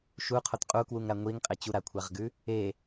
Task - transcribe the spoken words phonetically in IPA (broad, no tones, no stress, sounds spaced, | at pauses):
ʃ u qʰ o t qʼ u k w u ŋ ɾ a ŋʷ i ŋ qʼ e t͡ɕ u ɾ a kʷʰ a ʁ ɡ ʉ | e